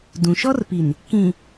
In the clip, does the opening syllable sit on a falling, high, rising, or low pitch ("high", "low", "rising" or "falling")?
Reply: low